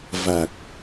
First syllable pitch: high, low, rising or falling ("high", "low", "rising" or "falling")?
low